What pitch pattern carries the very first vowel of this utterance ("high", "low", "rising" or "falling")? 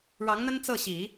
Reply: rising